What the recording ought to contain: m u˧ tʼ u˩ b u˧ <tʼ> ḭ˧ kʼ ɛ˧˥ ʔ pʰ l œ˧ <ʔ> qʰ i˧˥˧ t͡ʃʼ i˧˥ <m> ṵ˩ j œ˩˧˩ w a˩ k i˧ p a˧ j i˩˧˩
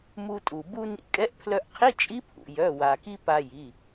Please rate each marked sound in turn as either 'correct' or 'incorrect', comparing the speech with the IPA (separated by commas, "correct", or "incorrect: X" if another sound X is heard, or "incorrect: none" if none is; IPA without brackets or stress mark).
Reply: incorrect: n, correct, incorrect: pʰ